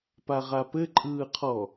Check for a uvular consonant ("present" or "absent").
present